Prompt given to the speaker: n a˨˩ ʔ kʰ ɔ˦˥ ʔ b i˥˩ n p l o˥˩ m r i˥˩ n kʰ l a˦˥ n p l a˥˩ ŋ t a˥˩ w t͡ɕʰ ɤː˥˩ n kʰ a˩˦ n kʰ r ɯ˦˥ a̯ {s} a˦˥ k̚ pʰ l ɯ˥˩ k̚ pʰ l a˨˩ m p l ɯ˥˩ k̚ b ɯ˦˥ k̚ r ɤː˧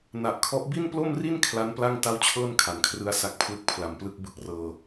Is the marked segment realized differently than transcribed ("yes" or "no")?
no